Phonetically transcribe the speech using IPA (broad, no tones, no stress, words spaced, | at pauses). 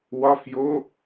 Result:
wɒfjo